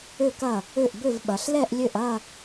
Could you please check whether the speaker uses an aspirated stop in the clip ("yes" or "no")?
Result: no